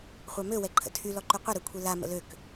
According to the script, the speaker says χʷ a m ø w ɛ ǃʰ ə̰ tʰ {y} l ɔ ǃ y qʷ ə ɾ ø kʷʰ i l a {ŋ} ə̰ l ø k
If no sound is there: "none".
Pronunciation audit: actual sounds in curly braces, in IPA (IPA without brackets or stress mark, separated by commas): y, m